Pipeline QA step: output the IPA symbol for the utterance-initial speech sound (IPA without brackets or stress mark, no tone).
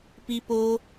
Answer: p